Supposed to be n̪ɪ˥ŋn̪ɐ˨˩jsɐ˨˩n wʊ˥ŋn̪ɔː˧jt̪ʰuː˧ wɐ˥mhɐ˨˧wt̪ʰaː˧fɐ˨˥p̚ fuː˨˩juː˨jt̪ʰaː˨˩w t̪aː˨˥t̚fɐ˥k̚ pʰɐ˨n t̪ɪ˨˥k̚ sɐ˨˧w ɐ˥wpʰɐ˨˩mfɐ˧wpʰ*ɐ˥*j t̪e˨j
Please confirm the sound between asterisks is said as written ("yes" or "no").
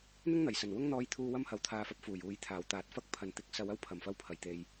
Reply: no